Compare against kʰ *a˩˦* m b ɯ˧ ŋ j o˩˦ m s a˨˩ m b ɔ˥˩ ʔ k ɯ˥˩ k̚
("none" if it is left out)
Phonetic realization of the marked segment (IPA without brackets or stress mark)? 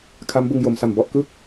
a˦˥